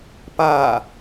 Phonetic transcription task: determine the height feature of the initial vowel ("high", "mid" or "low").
low